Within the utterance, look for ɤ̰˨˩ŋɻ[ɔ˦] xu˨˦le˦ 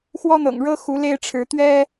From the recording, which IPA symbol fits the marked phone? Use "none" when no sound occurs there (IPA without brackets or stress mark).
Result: ɤ˦